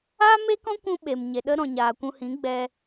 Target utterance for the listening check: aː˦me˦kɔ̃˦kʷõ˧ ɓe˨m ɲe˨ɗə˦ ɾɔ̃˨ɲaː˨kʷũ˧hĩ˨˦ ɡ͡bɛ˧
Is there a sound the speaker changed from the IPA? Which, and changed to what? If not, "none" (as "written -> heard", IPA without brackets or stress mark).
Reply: õ˧ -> ũ˧